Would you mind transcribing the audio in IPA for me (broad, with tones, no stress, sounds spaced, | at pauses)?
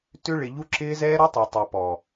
t ʏ˧ ɭ ɪ˨ ʎ u˧ ǁ ɪː˧ z ɛː˦ ɾ o˦ tˤ ø˨ tˤ o˨ p ɔ˨